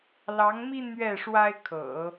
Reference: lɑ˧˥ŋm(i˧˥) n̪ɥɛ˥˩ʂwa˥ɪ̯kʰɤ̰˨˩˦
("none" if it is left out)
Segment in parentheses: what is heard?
i˥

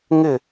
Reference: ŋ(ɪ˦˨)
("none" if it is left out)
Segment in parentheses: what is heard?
ɪ˦˨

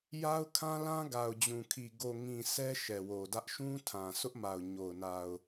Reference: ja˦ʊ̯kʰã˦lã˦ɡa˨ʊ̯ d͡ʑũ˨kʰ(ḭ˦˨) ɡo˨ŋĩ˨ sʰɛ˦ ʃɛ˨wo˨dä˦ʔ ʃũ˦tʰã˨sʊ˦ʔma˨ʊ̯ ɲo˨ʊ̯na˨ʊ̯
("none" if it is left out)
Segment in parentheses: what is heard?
i˨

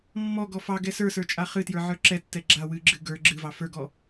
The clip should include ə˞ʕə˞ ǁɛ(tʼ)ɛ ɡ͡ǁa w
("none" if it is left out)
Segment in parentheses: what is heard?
tː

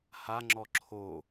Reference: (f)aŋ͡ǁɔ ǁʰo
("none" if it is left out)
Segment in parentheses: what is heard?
h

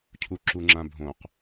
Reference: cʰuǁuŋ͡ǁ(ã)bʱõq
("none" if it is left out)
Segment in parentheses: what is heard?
ã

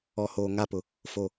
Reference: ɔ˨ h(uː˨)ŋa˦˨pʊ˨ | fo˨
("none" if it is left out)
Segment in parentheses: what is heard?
oː˨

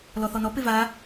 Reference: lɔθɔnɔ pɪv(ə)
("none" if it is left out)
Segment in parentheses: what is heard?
a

